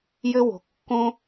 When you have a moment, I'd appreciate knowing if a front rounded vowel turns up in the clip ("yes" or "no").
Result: no